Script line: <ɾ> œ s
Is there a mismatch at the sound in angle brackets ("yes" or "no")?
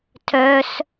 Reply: yes